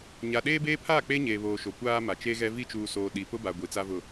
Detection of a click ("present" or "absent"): absent